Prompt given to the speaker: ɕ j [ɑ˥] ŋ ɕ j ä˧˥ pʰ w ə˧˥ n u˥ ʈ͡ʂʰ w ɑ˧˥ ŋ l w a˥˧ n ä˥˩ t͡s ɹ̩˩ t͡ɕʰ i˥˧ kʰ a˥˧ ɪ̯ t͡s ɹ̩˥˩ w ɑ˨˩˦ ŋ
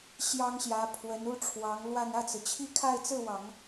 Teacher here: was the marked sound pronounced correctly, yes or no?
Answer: yes